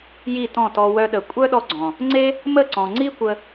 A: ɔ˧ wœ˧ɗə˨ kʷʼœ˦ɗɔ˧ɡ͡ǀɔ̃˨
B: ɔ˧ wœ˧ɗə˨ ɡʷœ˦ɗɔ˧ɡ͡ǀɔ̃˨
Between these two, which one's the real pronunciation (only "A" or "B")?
A